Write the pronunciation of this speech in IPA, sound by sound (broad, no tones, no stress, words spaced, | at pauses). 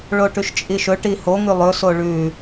ɭoʈʉʃt͡ʃʼiʃɵ ʈihoŋʉ lˠɵso ɭʉ